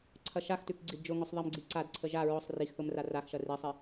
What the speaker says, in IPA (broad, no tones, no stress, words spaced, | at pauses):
ǀʰɐʃaxtʉk ɡ͡ǀidd͡ʒʊŋʊsˤ ðˤemɡ͡ǀi ǀadǀʰə ʒa ɹʊsˤ rixθʊm raraxʃɐ risˤi